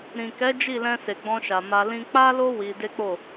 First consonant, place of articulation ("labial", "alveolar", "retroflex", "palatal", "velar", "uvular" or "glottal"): alveolar